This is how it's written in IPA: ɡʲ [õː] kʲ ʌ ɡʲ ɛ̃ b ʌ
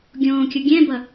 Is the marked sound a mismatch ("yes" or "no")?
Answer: no